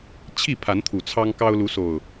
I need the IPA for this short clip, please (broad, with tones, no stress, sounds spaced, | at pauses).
t͡ɕʰ i˥˨ pʰ a˨˦ n t̪ʰ u˨˩ t͡sʰ ɑ˦ ŋ k ɑ˦ ʊ̯ l u˨˦ s o˨˩ ʊ̯